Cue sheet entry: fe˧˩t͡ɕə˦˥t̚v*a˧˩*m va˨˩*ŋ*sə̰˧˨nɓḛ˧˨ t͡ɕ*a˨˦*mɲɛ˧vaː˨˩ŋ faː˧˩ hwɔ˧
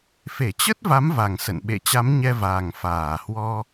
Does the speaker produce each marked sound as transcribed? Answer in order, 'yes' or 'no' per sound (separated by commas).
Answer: no, yes, yes